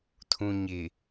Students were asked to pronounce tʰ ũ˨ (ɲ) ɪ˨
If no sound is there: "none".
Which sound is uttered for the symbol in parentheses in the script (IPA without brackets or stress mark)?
ɲ